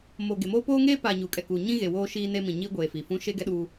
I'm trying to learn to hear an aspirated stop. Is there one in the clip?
no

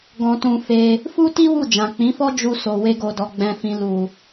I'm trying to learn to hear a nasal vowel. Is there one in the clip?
yes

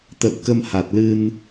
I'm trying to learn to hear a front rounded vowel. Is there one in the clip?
no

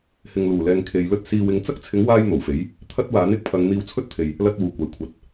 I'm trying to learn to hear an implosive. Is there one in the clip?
no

